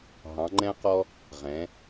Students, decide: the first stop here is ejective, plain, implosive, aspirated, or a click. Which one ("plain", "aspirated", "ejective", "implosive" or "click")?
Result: click